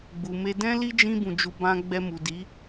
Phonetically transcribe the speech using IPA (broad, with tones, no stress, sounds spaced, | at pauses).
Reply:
ɡ͡b u˨ m e˧ d ɛ̃˦ l i˦ d͡ʒ ĩ˦ b ũ˧ d͡ʒ u˧ b ã˧ ɡ͡b ɛ˧ m u˨ d i˨˦